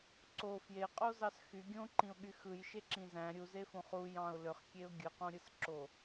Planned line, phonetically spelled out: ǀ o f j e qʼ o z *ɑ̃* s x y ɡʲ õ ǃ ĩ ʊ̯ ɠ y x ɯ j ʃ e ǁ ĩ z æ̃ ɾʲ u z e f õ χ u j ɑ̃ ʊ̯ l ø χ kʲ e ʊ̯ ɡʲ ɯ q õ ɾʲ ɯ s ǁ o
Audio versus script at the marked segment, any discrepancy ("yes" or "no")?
yes